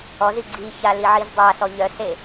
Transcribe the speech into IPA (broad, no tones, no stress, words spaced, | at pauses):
ɔzi ɡ͡ǀiça liʕizdˤasɔ ʎœse